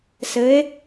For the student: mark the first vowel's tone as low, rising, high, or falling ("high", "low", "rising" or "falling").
rising